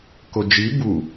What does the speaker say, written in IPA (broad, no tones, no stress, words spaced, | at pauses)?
kod͡ʒi bu